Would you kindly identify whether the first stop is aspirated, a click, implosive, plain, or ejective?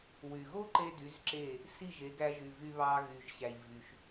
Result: click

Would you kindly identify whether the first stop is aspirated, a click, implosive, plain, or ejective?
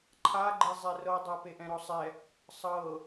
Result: click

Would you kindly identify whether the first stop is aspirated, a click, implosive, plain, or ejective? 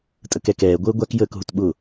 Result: ejective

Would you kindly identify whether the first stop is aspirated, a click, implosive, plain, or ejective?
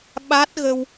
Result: implosive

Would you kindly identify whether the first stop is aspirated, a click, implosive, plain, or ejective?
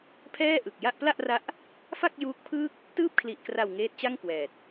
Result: aspirated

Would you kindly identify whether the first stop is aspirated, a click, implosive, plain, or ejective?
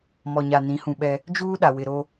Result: implosive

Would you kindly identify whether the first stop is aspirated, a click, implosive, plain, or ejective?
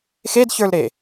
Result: plain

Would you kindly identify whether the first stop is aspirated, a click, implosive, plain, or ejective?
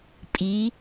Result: ejective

